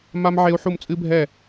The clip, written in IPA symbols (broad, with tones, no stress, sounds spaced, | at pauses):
m a˥ m ʕ e˥ u̯ ħ u˥˧ m t͡sʼ ɨ˥ bʱ ɛ˥˧